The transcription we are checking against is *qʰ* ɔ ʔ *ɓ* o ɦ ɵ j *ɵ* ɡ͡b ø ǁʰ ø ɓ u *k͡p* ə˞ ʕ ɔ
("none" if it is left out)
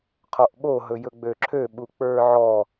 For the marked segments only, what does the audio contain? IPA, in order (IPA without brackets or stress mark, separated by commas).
qʰ, ɓ, ɵ, k͡p